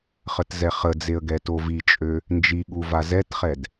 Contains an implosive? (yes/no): yes